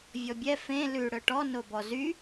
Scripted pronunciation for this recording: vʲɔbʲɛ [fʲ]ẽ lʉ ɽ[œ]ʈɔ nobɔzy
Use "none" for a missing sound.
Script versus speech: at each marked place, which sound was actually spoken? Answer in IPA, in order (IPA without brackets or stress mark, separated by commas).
f, œ